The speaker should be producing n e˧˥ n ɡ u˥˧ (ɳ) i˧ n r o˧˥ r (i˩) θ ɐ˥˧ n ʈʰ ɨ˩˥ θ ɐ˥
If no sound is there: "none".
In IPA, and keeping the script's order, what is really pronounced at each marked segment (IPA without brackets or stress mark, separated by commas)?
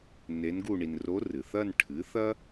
ɳ, ɨ˩